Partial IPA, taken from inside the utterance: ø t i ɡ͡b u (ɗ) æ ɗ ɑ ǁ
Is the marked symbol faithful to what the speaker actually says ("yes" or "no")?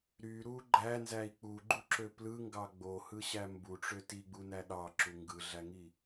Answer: no